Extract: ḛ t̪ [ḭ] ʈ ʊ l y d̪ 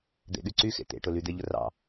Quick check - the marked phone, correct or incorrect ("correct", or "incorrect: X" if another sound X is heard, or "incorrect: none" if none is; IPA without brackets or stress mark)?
incorrect: ḛ